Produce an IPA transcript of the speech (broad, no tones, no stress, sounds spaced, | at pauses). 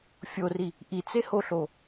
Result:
fʲ o r i | ʔ i t͡s e h o ɬ o